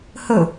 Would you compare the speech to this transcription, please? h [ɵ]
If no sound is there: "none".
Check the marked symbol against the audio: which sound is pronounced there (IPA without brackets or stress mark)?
ɵ